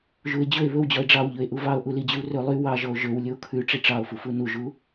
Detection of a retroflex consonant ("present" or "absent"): present